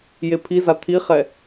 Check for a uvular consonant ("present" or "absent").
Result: present